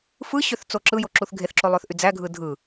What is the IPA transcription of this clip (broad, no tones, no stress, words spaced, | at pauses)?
fɯɕøθ t͡soǁɯjo ǁuθɡʱeθǁo lˠøθʔyd͡zæɡʱɯ dʱɯ